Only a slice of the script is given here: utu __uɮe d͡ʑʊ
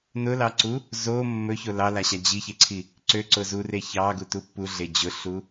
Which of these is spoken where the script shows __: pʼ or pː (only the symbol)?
pː